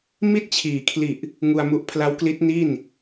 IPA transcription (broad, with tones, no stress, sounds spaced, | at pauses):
m i˥˩ t̚ t͡ɕʰ iː˩˦ kʰ l i˨˩ ʔ | ŋ u˧ a̯ m u˦˥ ʔ pʰ l a˦˥ w k l i˦˥ t̚ n i˥˩ n